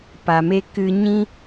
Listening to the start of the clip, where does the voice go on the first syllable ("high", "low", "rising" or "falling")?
low